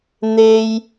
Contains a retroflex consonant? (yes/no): no